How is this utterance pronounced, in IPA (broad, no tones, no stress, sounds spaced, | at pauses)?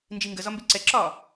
n d͡ʒ i ŋ ɡ ə z ɒ m b e ǀ ɛ ǁ ɒː